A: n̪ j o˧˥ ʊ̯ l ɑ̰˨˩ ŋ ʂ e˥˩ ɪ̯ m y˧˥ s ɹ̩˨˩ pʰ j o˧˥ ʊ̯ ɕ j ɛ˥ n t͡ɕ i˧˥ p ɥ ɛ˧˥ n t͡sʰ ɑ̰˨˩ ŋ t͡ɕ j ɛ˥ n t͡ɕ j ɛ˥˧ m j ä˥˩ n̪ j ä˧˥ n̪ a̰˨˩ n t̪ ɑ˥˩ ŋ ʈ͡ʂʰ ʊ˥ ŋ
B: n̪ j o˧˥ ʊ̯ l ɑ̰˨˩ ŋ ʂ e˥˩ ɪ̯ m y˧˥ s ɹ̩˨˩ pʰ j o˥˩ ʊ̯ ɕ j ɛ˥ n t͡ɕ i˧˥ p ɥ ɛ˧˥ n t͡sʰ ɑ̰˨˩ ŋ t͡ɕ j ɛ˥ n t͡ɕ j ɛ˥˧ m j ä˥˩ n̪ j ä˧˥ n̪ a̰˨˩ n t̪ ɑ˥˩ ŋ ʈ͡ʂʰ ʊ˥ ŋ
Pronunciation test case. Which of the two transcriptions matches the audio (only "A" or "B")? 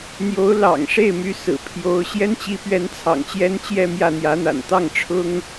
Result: A